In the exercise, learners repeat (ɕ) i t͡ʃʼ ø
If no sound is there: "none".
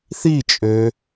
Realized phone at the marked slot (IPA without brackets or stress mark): θ